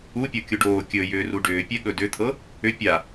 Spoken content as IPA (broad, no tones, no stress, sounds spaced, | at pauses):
u pʲ o kʲ u ɖ oː kʲ ɵ j ʏː r u ɖ ʏː pʲ ɛ ɠ ɵ d ʏ t̪ʰ ɤ | ʏ pʲ a